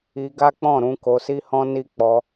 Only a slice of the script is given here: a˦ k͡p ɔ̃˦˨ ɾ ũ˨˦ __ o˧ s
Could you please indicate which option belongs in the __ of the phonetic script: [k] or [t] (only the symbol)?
k